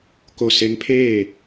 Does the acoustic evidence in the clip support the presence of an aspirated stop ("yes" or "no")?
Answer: yes